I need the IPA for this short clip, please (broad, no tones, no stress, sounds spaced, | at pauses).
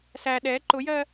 s æ ɗ ɛ ǃ ʊ j ɜ